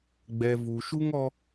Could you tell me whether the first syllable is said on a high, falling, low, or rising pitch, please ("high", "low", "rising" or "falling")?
low